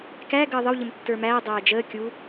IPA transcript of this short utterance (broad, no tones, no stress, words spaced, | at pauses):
kæ ɡəːðˤəw ʎəmtːə˞mæː dˤæːd͡ʒəː kʲu